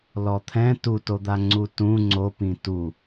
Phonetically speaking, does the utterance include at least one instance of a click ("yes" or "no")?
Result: yes